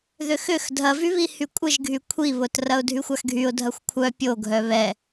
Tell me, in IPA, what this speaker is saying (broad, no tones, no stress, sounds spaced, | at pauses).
ð ʏ x ʏ x dʱ ɐ v y β i h y kʷʼ ɪ ʒ ɡʱ y kʷʰ i β ʊ t r ɐ ʊ̯ dʱ y xʷ a x ɡʱ y ʊ̯ dʱ ɐ xʷ kʷʰ œ pʲ o ɡʱ œ β ɛ